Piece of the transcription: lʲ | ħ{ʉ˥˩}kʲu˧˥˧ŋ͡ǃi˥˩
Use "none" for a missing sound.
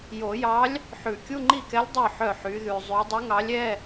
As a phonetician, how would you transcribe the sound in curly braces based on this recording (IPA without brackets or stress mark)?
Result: ʉ˨˩˦